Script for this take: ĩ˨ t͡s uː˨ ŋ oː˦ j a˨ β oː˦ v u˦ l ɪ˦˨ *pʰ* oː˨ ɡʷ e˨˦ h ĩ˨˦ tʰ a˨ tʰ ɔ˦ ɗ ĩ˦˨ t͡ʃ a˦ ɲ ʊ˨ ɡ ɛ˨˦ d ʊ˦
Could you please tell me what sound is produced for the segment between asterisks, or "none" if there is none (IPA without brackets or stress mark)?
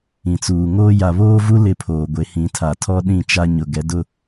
pʰ